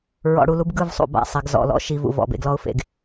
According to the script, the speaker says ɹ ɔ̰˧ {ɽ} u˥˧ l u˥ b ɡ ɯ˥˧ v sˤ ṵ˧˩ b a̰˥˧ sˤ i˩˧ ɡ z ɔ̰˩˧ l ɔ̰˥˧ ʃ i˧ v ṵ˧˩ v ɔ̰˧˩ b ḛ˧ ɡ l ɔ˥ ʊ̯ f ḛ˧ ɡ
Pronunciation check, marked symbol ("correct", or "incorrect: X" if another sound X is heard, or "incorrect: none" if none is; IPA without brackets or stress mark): correct